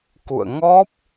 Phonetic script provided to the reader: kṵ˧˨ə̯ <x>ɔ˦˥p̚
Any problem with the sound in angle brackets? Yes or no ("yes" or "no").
yes